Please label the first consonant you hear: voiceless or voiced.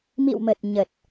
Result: voiced